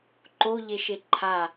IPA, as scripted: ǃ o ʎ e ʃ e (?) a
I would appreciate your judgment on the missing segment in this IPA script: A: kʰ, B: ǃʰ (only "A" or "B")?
B